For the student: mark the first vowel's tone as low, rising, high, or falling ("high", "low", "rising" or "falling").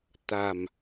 low